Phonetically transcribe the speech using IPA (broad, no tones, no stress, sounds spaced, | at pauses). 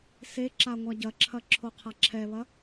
s e ǁ a ŋʷ a ɟ ɐ ǁʰ ɐ ǁʰ o qʰ a ǁʰ ɛ β ɐ